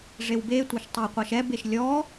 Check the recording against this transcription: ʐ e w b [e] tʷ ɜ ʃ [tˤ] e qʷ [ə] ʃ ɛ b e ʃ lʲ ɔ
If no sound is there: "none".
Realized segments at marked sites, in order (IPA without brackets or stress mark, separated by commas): e, tˤ, ʌ